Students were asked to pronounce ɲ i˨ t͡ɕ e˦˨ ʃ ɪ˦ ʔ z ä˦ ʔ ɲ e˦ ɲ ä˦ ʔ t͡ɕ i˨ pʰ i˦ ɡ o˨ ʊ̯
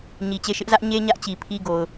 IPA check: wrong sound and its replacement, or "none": none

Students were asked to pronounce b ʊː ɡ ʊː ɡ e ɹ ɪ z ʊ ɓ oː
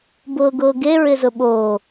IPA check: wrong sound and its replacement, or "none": none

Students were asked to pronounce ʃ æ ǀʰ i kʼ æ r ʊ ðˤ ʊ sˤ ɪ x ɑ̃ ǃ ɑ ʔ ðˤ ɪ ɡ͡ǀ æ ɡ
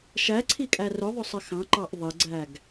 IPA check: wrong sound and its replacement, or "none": none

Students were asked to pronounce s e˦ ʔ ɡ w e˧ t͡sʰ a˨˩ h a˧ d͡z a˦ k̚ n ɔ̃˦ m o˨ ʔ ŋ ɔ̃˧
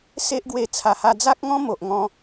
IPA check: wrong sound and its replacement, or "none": n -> ŋ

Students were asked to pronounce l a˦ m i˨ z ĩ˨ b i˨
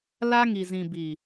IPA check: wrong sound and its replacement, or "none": m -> ŋ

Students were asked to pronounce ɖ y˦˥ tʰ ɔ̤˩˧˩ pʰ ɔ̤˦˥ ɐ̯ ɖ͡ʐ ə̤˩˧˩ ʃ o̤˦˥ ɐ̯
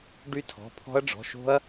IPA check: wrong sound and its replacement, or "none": ə̤˩˧˩ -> ɔ̤˩˧˩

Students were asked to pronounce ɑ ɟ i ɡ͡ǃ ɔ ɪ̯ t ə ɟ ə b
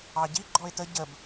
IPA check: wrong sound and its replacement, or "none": none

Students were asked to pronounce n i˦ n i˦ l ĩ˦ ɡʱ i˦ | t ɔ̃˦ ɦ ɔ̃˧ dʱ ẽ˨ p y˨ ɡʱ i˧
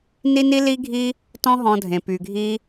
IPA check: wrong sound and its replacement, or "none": ĩ˦ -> i˦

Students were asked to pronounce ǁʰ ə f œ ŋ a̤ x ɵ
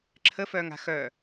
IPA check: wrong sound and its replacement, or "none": ɵ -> œ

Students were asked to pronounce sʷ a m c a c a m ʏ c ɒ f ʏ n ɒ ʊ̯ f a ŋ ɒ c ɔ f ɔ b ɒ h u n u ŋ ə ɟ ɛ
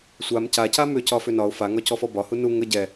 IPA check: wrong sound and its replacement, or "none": none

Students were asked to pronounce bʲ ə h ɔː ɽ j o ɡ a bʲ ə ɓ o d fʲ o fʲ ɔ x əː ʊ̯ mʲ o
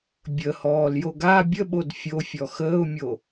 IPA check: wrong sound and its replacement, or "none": ɽ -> l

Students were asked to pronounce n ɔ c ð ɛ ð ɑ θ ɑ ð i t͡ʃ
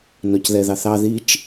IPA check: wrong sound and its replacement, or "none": none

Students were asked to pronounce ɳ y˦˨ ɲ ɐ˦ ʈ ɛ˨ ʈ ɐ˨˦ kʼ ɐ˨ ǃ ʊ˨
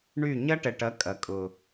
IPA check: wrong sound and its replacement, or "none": ǃ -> kʼ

